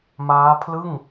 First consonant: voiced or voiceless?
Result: voiced